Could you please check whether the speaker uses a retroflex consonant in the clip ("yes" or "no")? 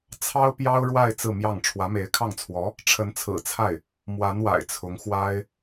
yes